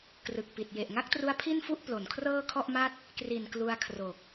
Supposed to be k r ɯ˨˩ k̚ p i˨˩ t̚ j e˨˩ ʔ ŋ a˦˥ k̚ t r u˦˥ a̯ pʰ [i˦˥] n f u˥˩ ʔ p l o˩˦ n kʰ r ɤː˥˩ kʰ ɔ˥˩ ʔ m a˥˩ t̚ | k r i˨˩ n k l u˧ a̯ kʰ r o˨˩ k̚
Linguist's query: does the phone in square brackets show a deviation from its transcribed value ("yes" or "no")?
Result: yes